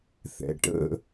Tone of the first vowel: low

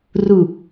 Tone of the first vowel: low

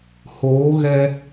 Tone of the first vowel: rising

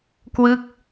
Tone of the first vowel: falling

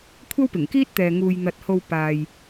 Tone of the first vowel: high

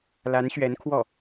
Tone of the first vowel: rising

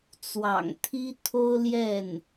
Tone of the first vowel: low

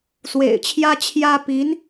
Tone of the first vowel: low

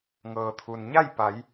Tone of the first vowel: low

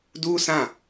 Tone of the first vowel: high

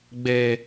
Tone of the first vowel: low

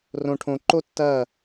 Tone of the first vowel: low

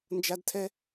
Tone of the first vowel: high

